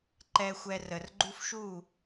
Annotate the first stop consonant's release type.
click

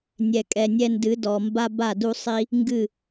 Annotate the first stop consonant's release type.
ejective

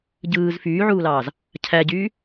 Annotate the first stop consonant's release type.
plain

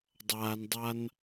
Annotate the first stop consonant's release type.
plain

